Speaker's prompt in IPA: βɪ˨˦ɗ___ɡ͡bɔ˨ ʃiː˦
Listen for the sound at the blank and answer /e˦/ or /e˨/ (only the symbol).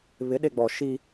e˨